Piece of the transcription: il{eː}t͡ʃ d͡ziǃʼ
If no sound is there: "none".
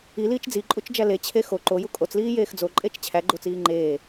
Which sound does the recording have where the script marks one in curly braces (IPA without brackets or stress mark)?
iː